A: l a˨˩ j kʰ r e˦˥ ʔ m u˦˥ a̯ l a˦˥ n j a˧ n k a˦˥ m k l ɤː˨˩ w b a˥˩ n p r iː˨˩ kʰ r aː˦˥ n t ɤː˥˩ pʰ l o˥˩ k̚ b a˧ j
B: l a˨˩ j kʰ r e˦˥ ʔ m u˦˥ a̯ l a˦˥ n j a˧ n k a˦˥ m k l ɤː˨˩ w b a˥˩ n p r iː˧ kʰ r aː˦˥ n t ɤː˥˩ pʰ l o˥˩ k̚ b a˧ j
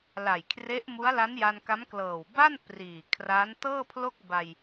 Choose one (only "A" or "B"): A